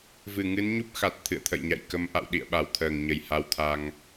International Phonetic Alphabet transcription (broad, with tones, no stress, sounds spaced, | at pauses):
v ɨ˧˩ ŋ ɨ˨˦ n ɲ u˦˥ p̚ x a˨˩ t̚ t̪ʰ ɨ̰˧˨ ə̯ t̪ʰ ə̰˧˨ j ɲ a̰˧˨ j k ə˨˦ m ʔ a̰˧˨ w ɗ ḭ˧˨ ə̯ ɓ a˧˩ w t̪ʰ əː˧˩ ŋ ɲ ə˧˩ j h a˧ w t̪ʰ a˧ ŋ